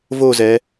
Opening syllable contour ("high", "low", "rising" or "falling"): falling